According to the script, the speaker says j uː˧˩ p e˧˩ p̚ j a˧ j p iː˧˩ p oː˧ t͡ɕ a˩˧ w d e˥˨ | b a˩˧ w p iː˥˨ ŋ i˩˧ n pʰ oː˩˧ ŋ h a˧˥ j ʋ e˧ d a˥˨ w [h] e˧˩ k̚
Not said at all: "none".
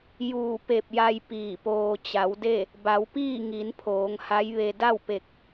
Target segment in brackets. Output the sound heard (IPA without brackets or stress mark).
p